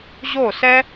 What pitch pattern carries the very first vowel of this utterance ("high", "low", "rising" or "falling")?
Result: falling